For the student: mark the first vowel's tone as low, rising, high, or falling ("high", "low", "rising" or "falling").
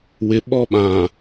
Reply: rising